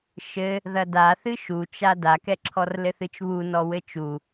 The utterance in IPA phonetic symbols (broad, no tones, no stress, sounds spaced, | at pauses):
ʃ ɘ | ð ɐ d a θ ɨ ʃ u t͡ʃ a d a k ɛ ǁʰ ɔ r l ɘ θ ɨ t͡ʃ β u n ɔ w ɘ t͡ʃ u